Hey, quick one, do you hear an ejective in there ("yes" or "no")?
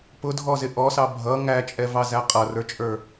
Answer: yes